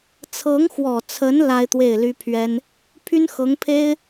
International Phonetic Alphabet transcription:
t͡sʰ ɤ˧˥ ŋ x w ɔ˨˩ t͡sʰ ə˧˥ n l a˥ ɪ̯ t̪ w e˥˩ ɪ̯ l y˥ pʰ ɥ ɛ˥ n | pʰ y˥ n x ɤ˧˥ ŋ pʰ e˥ ɪ̯

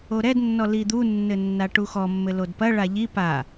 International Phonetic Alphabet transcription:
o ɾ ɛ d nː ɔ l i d̪ u nː ɘ nː a ʈ u x ɔ mː ɘ l o d p ɐ ɭ a ʎ i p a

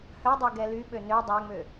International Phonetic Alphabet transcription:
h œ dˤ ø ɡ ɛ l y ɓ ø n ø dˤ æ ŋ͡m ø

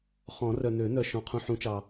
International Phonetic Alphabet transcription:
χ ɔ̃˨˩˦ r œ˨ n̪ ø˨˩˦ n̪ œ˨ ʃ ɔ̃˨ qʰ ũ˨ ħ ũ˨˩˦ t͡ʃ ɑ˨

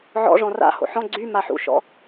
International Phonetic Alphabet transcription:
ʕ ɔ̰ ʐ ɔ̃ r a̰ h o̰ ħ ɔ̃ ɡ͡ǀ y m a ħ ṵ ʃ ɔ̰

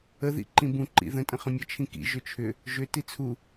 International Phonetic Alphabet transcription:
ə ð ḭ ǃ ĩ b ũ ǃ ḭ ð ə̃ tʼ ə̃ χ ə̃ mʲ ə t͡ʃʰ ĩ k ḭ ʒ ʏ t͡ʃʰ ʏ | ʒ ʏ t i t͡sʰ u

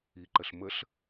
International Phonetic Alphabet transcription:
i ǃ ə ɬ m ə ɬ

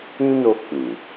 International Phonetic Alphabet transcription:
ĩ˦ n o˧ k͡p ĩ˨

